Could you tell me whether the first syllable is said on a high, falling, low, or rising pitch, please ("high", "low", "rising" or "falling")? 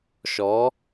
rising